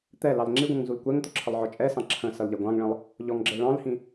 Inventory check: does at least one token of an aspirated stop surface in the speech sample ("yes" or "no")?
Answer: yes